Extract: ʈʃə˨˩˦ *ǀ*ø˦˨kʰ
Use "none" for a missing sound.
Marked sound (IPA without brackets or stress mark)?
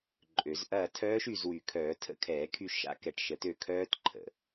t